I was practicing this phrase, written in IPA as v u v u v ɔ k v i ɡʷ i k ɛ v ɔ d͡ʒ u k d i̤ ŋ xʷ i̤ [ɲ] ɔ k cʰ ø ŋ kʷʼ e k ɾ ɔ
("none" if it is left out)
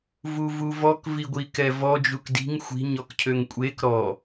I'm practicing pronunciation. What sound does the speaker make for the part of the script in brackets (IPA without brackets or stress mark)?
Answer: ɲ